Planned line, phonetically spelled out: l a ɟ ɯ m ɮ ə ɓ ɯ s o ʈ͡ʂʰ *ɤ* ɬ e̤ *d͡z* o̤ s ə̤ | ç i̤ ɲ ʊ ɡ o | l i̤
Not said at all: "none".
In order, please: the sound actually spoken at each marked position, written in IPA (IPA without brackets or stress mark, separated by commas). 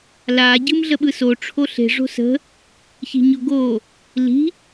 o, ʐ